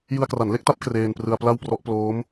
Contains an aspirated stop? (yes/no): no